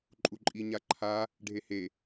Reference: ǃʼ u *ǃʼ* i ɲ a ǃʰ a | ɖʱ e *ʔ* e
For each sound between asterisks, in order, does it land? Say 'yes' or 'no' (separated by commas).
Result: yes, no